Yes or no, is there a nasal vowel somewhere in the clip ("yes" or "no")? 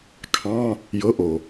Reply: yes